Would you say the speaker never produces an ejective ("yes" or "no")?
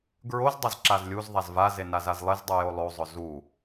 yes